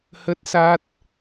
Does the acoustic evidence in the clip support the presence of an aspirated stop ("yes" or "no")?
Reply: no